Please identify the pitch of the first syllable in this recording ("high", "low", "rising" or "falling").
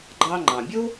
high